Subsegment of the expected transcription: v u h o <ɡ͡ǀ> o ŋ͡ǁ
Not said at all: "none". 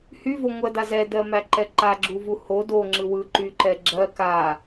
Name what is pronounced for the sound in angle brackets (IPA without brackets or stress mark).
d